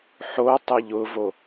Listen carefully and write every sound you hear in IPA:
ħ o tˤ e ʎ ʊ v o

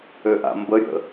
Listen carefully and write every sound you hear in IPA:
ø ʔ a̰ m b ə ɾʲ ə̰

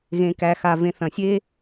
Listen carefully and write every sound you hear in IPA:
ɣ ẽ˨ k æ˨ x a˨ v ẽ˨ θ ɐ̃˨ sʲ e˦

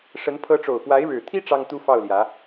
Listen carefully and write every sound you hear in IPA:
ʂ ə˧˥ n pʰ ɤ˧˥ ʈ͡ʂ o˨˩ ʊ̯ p w a˧˥ ɪ̯ ɻ ɻ̩˨˩ t̪ʰ i˥ ʈ͡ʂ ɑ˥ ŋ t̪ u˥ f ɑ˥˩ ʊ̯ l j ä˧˥

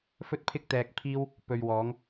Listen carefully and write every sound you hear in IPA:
f ɵ˥ t̚ pʰ ɪ˥ k̚ t̪ ɛː˧ k̚ pʰ iː˥ w | p ɵ˨ ɥ w ɔː˨˧ ŋ

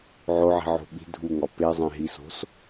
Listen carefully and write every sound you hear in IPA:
ʕ o ʕ i̤ ʕ o̤ ɓ i̤ dʱ u ŋ ɒ p e zˤ ẽ ɦ i s o̤ s

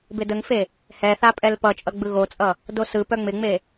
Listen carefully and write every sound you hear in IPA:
b ɪ d ə ŋ f e | h ɛ θ a pʼ ɛ l p ʌ t͡ʃʼ ʌ ɡ͡b ɯ ɣ o t͡sʼ ʌ | d o s ɯ p œ ŋ͡m ɪ ŋ͡m e

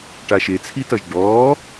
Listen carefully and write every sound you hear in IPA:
ʈ a ʃ e t͡sʰ i t ʌ ʒ ɖ ɔː

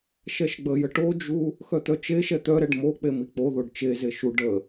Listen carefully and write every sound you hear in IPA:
ʃ ɛ ʃ ɡ͡b ə j ə ʈ o d͡ʒ u | x œ t̪ œ t͡ʃ e ʃ ɛ t̪ œ ɾ ɛ ɖ m o k͡p e m i k͡p o ð o ɖ t͡ʃ e z e ʃ u ɖ ə

